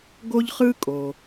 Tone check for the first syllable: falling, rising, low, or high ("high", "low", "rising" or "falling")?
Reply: high